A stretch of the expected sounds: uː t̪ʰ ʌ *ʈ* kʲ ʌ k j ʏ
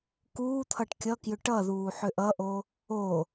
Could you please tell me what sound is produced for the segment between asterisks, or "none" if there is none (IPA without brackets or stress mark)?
ʈ